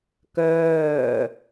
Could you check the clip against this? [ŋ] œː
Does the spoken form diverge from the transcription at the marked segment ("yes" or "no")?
yes